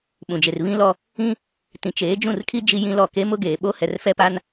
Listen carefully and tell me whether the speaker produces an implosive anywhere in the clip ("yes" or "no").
yes